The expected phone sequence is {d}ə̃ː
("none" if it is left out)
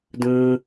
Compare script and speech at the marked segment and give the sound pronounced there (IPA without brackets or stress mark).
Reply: d